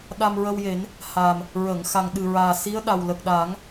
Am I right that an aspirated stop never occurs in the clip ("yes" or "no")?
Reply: yes